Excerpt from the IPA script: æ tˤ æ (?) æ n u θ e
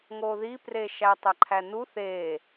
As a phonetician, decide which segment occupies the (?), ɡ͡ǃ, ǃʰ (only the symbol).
ǃʰ